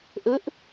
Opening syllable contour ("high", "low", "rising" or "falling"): rising